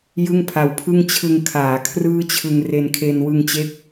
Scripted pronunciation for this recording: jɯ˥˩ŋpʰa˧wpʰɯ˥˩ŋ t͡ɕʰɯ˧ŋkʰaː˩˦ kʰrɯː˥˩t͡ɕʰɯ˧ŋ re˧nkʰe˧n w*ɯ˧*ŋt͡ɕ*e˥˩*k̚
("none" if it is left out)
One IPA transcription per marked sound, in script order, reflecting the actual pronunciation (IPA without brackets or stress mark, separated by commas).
ɯ˧, e˦˥